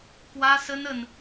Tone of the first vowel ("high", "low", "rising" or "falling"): high